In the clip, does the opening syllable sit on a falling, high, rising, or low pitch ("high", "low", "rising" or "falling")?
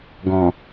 low